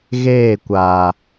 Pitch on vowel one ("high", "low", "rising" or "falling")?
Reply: falling